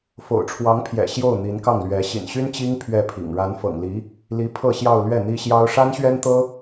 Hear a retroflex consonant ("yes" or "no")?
yes